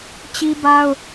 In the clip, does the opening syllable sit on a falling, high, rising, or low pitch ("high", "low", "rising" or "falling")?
high